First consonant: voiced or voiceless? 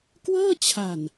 voiceless